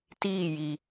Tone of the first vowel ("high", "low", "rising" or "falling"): falling